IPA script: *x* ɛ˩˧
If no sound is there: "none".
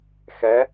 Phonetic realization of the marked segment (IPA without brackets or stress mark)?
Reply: x